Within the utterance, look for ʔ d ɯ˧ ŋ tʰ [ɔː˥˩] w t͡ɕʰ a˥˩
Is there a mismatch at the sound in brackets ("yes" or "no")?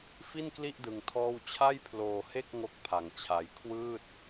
no